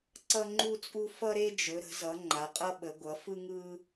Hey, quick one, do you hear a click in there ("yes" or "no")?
yes